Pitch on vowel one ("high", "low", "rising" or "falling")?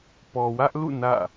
low